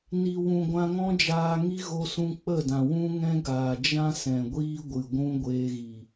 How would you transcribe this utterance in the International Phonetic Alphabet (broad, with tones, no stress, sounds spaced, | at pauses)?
n i˨ w ũ˨ ɡʷ ã˧ ŋ ɔ̃˦ d͡ʒ aː˧ ŋ i˦ ɣ o˧ s ũ˧ k͡p ə˦˨ d ã˨ w ũ˦ ŋ ɛ̃˦ ɡ aː˨ d͡ʒ ã˦ s ɛ̃˨ ɡʷ iː˦ ɡʷ ɨ˨ ɡʷ ũ˦ ɡʷ eː˧ ɣ i˨